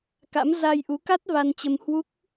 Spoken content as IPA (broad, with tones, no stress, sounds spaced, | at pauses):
k a̰˧˥ m z a˧ j ʔ u˨˦ k a˦˥ t̚ v a˧ n t͡ɕ ə˧ m h w u˦˥ k̚